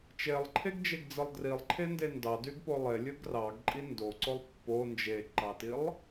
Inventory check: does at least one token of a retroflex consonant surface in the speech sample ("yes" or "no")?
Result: no